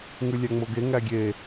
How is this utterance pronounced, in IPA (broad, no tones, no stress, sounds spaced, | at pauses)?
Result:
ŋ ʉ lʲ æ ŋ͡m o ɡ e ŋ æ ɡʲ e